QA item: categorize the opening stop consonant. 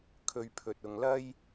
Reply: aspirated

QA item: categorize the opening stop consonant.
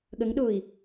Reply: implosive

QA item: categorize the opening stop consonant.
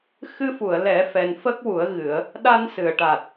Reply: plain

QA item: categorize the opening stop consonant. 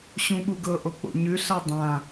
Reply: implosive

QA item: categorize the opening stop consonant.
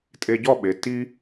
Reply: ejective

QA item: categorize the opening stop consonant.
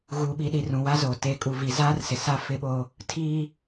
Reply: implosive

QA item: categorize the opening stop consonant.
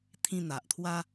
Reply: aspirated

